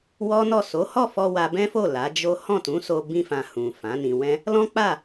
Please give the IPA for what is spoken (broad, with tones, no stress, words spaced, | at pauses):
wɔ˦nɔ˦˨ so˨˦hɔ˦˨fɔ˧ wa˦ bɛ̃˦fo˦˨ la˨˦d͡ʒo˦ hɔ̃˦˨tũ˨˦so˧ bĩ˦fã˧hũ˨ fã˨˦nĩ˧wɛ̃˦ | lɔ̃˦k͡pa˦˨